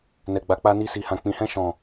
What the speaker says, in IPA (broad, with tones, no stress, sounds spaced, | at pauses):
n ɛ˨ ɡ͡b a˨ k͡p a˧ n i˧ s i˨ h ã˨ k͡p ĩ˨ h ɛ̃˧ ʃ ɔ̃˨